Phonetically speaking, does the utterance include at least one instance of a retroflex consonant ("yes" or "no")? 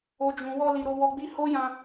no